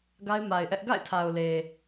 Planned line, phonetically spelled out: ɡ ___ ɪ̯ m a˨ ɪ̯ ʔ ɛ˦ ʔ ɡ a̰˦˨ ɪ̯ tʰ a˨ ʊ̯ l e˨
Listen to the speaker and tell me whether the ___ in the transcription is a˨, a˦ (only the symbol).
a˦